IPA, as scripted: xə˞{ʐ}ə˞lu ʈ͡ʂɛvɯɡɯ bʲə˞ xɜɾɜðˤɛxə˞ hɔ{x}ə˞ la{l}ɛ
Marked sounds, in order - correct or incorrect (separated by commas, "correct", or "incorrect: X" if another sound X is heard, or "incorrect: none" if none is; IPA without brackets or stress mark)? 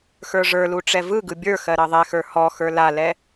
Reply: correct, correct, correct